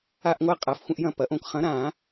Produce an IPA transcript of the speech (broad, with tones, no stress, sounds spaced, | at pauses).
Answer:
a˦ ʔ ŋʷ a˦ qʼ a˨˥ f xʷ ə̃˦ ʔ j ɐ̃˥˩ p ɐ˨˥ ʔ õ˦ k χ ɐ̃˨˥ ɾ ã˨˩˦